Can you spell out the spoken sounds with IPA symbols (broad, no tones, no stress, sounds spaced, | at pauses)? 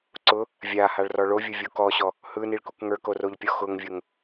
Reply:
ǀ ʊ | vʲ a h a ɭ r ɔ ɭ o vʲ ʊ vʲ o k ɔ ɕ ɔ | h ɯ n i ɭ k u k ŋ ə˞ k o r o ʎ pʲ ɔ x ʊ ŋ vʲ ʊ ŋ